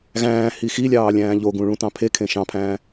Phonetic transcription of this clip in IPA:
ɣæ̃ːhi xilʲɑːlʲæ̃ː ʎoɡũɭũtɑ̃ pʰekʰẽ ʃɑ̃pʰæ̃ː

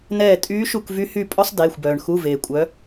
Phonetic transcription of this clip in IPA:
nɛː˦˨tʼyː˧˥ʃu˦˨k vy˧˥hy˦˨ pʼɔ˥sˤdeː˩˧˩xʷbœː˩ɳ xu˩˧˩veː˩ kʷʼœ˩˧

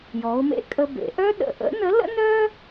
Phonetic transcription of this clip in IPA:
jɔ˩˧ʊ̯mḛ˧kʼə˧bḛ˩˧ ʔœ˥ɗə̰˩ ʔə̰˧˥nə˧˥lə̰˥nœ˥

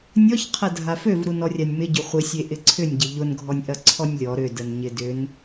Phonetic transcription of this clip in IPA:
nʲɔç qʰɐdʱaføv ɾunɔrʲanʲmɪ ɟʏχʷɪsʲe ʔɪǀʰʏnʲɟɪ ʎʊnɡʱɔnʲʔɐ ǀʰɔnʲlʲɔ ɾʏdənɲɪ dʏn

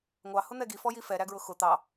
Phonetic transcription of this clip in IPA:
ŋʷɑhʊn̪ɛ ɡifɔji fɛɾæɡɹʊ xʊ t̪ɑ

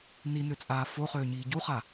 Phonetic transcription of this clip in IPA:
ninøt͡sʼaː foχøːɲiː ɟuχa

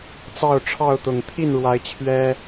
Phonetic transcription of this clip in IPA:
t͡sɑ˥˨ʊ̯ʈ͡ʂʰɑ˥˨ʊ̯t̪ʊ˨˩ŋ t̪ʰi˥˨n ɻwa˨˦ɪ̯ t͡ɕʰɥɛ˦

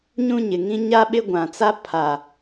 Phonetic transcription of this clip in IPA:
ɲũ˦ɲɪ˨ŋĩ˦ ɲa˦ɓɪ˦ɡʷã˨t͡sa˦ pʰa˨

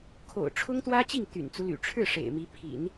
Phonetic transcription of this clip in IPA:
kʰo̰˨˩ʊ̯ʈ͡ʂʰʊ˥ŋ t̪wä˥t͡ɕi˥˩ŋ t̪y̰˨˩nt͡su˦ly̰˨˩ ʈ͡ʂʰɻ̩˥˩ ʂḛ˨˩ɪ̯mi˧˥ pʰḭ˨˩˦n

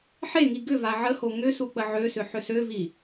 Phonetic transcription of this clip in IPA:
ħeŋi ɡʏva ʕəho ŋʏ suk͡pəʕøsʏ ħʏsøvi

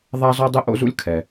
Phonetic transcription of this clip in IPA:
ðˤa˥zɔ˥dˤɪ˥ ʔo̰˥zṵ˥lʲ kʰɛ˩

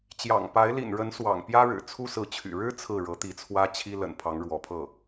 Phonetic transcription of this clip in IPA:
t͡ɕjɑ̰˨˩ŋpa˧˥ɪ̯ lḭ˨˩nɻə˧˥n swɑ̰˨˩ŋpjä˥ɻɻ̩˨˩ t͡sʰu˥sɹ̩˧˥t͡ɕʰy̰˨˩ ɻɻ̩˥ t͡sʰɹ̩˥˩ ɻɤ˧˥t̪i˧˥t͡sʰwä˥ t͡ɕʰi˥lə̰˨˩n pʰɑ˧˥ŋɻwɔ˧˥pʰɤ˥˩

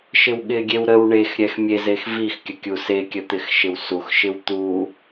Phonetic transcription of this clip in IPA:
ʃɪwɠɪɡʲew ɾəw ɳex ɾʲɛxmʲezex vixkʲə kʲusekʲə t̪ɪxʃɪwsuxʃɪw t̪u

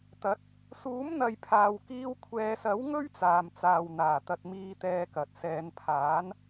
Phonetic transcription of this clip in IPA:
t̪ɐ˨˥t̚ | suː˨˥mn̪ɐ˨jpʰaː˨wkiː˧w kʷʰɛː˨˧sɐ˨˥w ŋɵ˥ɥt͡saː˨mt͡saː˨w n̪aː˨˩t̪ɐ˧t̚ miː˧ t̪ɛː˧kɐ˨t̚ sɛː˨˧npʰaː˨˥n

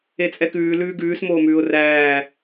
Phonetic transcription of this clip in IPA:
et͡sʼɛkʉː lʉːɡʉːs moːmʉːʊ̯ræː

